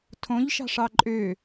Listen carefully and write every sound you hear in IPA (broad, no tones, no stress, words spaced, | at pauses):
tʰõʎʃɑ̤ʂɑ ǃʼø